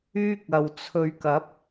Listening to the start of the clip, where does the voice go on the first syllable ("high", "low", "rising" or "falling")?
high